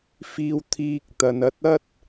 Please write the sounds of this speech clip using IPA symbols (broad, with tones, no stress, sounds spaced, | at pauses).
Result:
f iː˧ w t̪ʰ iː˧ k̚ t̪ ɐ˨ n ɐ˧ t̚ ɐ˥ t̚